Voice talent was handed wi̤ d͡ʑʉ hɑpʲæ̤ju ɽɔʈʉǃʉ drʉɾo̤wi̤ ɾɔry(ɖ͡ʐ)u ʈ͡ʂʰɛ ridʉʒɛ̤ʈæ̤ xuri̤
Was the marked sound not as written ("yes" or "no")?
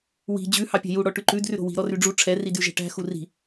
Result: no